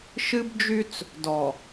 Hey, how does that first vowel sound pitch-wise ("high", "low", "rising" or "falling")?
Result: high